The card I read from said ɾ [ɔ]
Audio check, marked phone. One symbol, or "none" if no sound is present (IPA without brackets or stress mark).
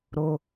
o